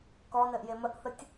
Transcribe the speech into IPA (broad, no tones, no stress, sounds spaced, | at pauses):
k ɔ n ɘ ʔ j e m ə ʔ θ ə tʲ